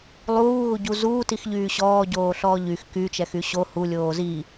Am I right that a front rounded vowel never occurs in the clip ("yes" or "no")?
no